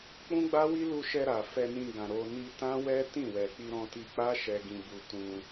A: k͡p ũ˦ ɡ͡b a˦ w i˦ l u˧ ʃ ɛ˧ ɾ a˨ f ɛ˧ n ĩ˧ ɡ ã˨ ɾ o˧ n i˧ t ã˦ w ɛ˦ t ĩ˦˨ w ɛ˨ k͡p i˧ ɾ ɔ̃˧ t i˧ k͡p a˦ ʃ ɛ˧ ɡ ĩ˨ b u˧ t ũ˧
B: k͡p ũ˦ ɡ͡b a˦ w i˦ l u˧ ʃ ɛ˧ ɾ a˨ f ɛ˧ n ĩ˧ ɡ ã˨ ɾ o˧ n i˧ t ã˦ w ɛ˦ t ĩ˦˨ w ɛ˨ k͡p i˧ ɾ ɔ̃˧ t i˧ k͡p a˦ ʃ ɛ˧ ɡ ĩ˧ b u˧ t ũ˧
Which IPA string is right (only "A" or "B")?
B